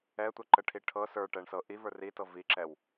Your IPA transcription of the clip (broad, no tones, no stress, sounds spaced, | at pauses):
ɛ tʷ ɛ ǃ ə ʈʰ i ʈʰ ɤ s ə˞ ʈ ɛ ɳ s ɤ ʔ i v ə˞ r i t ɤ v i ǁ ɛ w